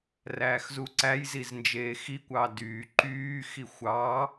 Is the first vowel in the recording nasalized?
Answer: no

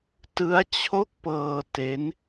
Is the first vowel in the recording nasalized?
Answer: no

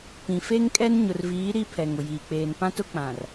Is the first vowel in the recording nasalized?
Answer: yes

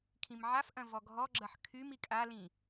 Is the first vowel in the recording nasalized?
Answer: yes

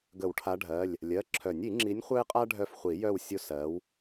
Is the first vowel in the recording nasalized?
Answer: no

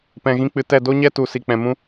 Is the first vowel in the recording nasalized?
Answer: yes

